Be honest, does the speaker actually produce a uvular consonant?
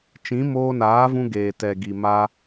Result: no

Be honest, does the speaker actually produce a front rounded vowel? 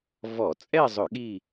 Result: no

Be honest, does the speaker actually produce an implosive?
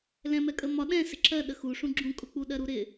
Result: yes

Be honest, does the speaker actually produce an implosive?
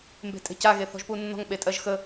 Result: yes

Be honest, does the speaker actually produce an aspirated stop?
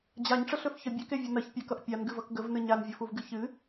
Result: no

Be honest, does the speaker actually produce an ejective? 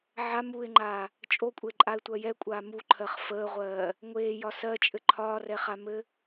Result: yes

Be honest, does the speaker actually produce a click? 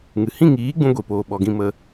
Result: no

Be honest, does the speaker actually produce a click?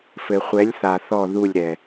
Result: no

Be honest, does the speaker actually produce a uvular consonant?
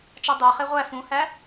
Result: yes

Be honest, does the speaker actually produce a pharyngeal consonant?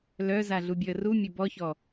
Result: no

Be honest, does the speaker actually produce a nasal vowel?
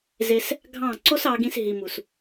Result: yes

